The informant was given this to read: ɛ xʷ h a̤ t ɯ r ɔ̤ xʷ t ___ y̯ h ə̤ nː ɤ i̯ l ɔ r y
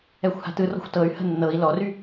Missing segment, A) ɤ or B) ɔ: A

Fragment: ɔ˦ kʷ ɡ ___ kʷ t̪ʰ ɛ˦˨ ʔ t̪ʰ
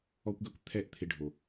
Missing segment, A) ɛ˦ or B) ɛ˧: A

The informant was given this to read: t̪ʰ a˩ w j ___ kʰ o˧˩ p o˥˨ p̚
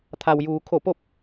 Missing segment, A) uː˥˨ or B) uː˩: B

